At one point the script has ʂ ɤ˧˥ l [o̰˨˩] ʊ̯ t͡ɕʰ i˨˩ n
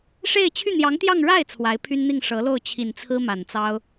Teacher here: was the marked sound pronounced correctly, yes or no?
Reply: no